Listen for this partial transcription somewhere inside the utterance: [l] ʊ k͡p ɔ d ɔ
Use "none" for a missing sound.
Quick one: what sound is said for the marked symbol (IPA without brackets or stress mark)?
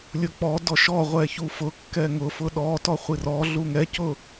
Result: lʲ